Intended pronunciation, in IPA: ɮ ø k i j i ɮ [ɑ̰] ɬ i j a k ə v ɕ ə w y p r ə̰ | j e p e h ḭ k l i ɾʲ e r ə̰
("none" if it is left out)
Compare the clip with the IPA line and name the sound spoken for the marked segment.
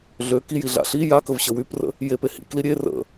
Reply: a̰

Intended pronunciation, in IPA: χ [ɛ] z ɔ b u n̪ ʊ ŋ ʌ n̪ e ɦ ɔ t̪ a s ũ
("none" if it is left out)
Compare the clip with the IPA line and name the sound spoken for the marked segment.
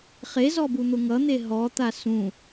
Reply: e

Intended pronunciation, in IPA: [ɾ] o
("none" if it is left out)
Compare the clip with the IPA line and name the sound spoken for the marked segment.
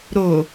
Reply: ɾ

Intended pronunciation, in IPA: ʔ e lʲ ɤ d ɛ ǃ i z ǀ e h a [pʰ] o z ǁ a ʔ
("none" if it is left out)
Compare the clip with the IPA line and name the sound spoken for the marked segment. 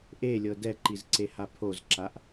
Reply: pʰ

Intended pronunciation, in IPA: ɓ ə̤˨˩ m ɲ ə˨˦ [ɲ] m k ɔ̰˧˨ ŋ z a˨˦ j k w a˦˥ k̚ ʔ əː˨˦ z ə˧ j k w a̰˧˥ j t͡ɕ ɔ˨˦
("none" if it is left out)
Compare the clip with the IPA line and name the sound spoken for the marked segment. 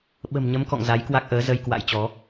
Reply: none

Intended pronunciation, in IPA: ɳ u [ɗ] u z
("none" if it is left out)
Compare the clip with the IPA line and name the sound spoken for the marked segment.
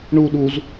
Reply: ɗ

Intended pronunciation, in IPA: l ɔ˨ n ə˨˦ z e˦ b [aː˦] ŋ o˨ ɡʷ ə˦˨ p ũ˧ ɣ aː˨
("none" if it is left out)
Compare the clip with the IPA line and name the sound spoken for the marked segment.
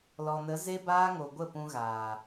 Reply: aː˦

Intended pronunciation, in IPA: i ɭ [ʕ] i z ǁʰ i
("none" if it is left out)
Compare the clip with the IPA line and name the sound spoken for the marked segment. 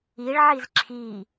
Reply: ʕ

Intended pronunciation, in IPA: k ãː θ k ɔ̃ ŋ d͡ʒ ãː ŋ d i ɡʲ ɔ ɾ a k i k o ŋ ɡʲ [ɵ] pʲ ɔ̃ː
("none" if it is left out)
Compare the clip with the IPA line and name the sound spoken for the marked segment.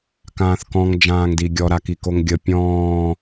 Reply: ə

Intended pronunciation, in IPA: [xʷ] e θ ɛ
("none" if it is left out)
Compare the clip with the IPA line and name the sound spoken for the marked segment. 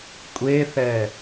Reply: kʷʼ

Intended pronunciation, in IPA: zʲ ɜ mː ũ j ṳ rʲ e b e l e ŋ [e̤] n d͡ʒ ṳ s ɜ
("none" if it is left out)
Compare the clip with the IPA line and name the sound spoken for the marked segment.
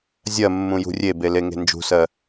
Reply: e̤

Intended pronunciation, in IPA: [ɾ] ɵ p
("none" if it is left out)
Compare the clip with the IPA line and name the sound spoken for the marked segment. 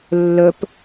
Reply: lː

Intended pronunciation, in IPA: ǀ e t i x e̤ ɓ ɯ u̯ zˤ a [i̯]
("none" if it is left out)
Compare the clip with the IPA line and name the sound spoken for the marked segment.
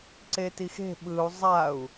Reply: u̯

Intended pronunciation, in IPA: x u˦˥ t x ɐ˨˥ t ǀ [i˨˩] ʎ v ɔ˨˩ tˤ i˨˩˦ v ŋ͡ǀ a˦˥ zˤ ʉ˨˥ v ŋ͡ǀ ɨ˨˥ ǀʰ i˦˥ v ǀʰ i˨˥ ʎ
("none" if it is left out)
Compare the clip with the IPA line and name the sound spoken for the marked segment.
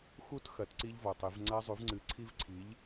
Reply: i˦˥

